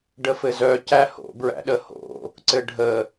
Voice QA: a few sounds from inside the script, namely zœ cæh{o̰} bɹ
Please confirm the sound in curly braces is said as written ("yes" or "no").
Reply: yes